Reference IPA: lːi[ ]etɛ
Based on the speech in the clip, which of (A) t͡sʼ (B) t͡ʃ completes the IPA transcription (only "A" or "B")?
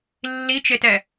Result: B